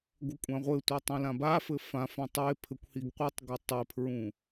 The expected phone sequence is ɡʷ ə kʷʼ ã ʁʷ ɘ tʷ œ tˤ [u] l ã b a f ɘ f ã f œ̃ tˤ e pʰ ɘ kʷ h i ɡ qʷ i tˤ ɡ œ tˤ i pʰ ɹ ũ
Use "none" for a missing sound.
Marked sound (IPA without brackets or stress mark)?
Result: ũ